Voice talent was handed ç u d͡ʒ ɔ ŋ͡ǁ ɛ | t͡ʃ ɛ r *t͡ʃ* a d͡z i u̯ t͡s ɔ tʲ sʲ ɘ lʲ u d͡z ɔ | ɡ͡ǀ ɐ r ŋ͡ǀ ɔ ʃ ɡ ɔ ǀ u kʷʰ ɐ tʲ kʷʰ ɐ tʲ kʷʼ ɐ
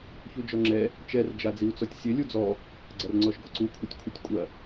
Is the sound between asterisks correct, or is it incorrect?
incorrect